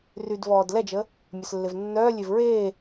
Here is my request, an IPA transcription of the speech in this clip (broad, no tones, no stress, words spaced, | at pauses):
rydvɔːd lɛd͡ʒə | mʲœslːevnːœːlʲev ɹeː